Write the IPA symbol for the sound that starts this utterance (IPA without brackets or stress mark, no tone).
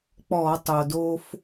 k͡p